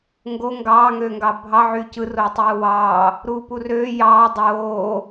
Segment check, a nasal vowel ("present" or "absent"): absent